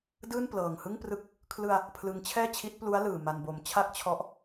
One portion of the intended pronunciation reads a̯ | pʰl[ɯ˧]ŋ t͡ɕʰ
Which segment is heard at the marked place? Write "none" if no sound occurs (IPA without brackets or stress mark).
ɯ˧